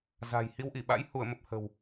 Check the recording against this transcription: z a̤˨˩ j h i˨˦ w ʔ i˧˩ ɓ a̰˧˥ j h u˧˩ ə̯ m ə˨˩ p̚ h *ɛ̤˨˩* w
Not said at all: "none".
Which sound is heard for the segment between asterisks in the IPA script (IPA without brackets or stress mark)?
ə̤˨˩